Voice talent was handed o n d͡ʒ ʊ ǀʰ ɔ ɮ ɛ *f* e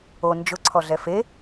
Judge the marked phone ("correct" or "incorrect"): correct